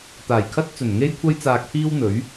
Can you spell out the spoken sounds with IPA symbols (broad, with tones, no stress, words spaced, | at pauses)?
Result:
t̪aː˨˩jkʰɐ˥t̚ t͡sɵ˨˩nŋe˥jkʷʰɐ˥j t͡saː˧k̚pʰiː˥wn̪ɵ˨˥ɥ